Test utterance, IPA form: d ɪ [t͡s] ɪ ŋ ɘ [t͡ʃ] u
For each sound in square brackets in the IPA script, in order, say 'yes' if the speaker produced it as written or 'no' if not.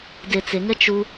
yes, yes

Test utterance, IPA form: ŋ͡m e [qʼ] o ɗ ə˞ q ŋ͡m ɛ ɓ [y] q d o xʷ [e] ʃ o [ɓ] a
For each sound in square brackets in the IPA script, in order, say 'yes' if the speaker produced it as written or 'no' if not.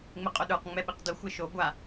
yes, no, yes, no

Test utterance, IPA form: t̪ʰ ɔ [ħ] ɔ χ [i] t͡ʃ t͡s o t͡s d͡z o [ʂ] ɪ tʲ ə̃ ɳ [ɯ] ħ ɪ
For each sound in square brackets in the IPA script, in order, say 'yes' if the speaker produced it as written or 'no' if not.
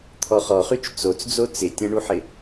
no, no, no, no

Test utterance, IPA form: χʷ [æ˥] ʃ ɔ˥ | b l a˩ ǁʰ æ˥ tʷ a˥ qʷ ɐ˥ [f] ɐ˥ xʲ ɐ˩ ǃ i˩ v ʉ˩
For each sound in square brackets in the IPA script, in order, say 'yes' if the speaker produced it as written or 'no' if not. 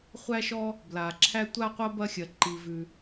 yes, no

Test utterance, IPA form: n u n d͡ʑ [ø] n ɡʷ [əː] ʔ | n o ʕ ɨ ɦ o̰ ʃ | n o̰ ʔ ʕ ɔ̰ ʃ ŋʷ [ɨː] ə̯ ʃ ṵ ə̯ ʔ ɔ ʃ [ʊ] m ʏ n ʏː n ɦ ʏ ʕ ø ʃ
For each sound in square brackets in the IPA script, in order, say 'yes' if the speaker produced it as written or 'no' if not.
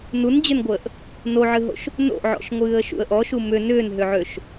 yes, yes, yes, no

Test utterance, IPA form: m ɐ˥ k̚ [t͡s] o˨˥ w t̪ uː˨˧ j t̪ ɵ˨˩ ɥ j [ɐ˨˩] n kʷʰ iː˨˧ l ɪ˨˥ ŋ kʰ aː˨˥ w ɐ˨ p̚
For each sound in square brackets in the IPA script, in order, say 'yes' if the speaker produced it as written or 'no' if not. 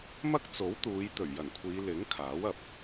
yes, yes

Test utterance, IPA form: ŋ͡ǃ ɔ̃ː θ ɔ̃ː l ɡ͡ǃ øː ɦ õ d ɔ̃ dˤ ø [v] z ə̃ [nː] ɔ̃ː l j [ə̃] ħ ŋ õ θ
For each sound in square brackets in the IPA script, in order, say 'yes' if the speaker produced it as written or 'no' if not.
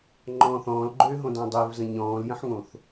yes, no, yes

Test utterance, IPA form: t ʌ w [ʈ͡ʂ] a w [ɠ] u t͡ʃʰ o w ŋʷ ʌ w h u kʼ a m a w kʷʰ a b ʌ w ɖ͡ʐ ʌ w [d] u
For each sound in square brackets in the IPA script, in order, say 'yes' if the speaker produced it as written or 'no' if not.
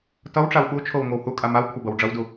yes, yes, yes

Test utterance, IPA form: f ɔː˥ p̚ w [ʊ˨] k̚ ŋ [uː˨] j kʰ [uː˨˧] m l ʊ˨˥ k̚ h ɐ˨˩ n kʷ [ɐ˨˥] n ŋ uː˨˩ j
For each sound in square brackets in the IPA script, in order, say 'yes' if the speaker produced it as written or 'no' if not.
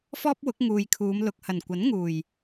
no, yes, yes, yes

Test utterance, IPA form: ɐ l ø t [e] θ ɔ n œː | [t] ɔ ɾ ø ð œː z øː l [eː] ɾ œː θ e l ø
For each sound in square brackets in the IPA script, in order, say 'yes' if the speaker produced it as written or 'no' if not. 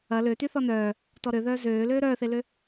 no, yes, no

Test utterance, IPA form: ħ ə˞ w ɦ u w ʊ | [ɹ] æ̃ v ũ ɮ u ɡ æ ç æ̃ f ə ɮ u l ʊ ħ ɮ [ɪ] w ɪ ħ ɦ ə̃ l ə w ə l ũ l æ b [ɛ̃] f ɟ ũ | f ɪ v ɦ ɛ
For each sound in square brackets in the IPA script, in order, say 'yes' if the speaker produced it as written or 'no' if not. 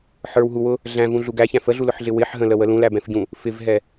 no, yes, yes

